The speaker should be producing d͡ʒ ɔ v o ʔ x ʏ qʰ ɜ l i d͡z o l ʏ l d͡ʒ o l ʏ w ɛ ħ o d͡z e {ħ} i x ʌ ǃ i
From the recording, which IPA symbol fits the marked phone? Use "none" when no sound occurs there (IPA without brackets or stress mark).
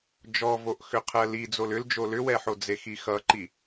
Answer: x